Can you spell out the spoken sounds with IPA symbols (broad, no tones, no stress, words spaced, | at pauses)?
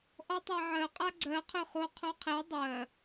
ʔɔtˤaʕɜ qʼaɡ͡ǀɜ qʰøχo qʰoqʰe dˤɜ